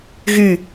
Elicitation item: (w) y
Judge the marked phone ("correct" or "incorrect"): incorrect